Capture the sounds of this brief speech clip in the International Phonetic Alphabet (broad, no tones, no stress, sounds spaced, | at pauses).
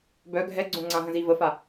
b œ ɡʱ ɛ ɡ͡ǀ õ ŋ͡ǀ ã ɦ ə̃ z i v ə f a